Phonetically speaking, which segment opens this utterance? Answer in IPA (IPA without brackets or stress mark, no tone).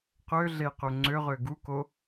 q